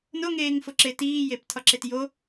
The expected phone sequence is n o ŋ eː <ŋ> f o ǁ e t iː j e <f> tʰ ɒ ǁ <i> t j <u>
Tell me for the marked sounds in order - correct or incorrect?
correct, incorrect, incorrect, incorrect

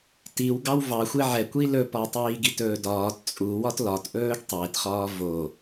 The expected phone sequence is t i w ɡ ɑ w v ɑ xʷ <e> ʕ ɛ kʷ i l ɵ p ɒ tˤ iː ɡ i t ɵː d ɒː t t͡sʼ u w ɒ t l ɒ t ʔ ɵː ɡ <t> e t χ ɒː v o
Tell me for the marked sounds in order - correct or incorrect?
correct, incorrect

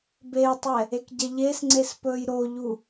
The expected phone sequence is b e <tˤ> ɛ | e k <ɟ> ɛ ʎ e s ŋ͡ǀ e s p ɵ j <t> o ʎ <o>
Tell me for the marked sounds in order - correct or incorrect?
correct, correct, incorrect, incorrect

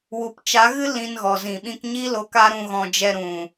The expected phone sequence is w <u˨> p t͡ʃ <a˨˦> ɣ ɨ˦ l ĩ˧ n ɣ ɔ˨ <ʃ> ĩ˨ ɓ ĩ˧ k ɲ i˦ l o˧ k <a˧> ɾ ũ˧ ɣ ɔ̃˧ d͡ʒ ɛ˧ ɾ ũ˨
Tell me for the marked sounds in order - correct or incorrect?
correct, correct, incorrect, incorrect

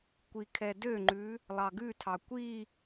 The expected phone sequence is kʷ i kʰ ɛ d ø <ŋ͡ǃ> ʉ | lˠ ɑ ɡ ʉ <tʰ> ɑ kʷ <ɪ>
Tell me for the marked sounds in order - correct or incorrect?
correct, correct, incorrect

